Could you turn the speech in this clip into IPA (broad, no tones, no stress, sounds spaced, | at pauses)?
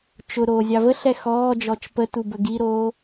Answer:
t͡ʃ ʊ ɾ oː zʲ ɑ v ə ɬ ɛ x ɔː d͡ʒ ɔ t͡ʃ p ə t u b ə ɡ i ɾ oː